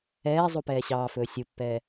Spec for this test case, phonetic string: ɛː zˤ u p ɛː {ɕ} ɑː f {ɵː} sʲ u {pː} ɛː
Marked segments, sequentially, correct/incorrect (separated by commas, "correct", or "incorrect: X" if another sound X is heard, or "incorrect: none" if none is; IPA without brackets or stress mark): correct, correct, correct